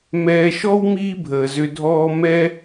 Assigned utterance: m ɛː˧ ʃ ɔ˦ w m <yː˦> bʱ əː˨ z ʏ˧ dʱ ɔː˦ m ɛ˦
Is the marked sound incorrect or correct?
incorrect: iː˦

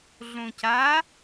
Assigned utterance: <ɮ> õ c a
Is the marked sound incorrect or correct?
correct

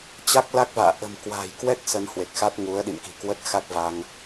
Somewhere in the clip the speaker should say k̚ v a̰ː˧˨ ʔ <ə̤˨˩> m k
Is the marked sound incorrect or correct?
correct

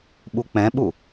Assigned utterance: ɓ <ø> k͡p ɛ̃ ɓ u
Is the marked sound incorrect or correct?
incorrect: u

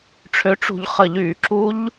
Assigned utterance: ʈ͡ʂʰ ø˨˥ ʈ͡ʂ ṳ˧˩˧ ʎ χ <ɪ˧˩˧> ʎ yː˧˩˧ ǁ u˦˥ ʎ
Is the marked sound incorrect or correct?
incorrect: ə˧˩˧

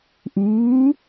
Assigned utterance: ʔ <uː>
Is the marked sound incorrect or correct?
correct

